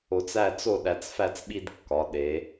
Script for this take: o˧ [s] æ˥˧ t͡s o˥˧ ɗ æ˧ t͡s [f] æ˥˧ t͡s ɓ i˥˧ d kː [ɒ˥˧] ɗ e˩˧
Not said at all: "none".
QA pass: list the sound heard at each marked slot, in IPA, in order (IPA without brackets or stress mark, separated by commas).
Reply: t͡s, f, ɒ˩˧